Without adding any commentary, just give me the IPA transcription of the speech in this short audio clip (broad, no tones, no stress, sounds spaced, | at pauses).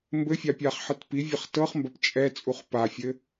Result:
m b ɘ fʲ a pʲ a χ ħ ɘ t p i vʲ ɐ χ t ɤ χ m b ɐ p t͡ʃʼ ɛ t͡sʼ u χ p a fʲ ɘ